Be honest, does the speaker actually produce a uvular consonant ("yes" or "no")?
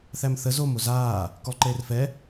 no